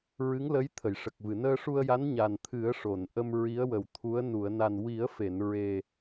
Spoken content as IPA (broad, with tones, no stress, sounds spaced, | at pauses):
ɹ ɨ˧˥ ŋ l ə˧˥ j t̪ʰ ə˨˩˨ j ʂ ə˨˩ k̚ v ɨ˨˩˨ n əː˧ ʂ u˧ ə̯ j a˧˥ n ɲ a˨˩ n t̪ʰ ɨ˨˩˦ ə̯ ʂ o˨˩˨ n ʔ ə˧ m ɹ i˧˥ ə̯ w ə˨˩ w t̪ʰ u˧˥ ə̯ n u˨˩˨ ə̯ n a˨˩ n w i˨˩˦ ə̯ f e˨˩˨ n ɹ e˨˩